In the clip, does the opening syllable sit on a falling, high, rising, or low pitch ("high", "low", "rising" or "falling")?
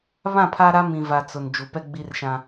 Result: falling